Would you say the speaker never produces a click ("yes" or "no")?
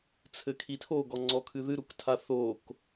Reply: no